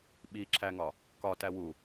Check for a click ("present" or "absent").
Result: present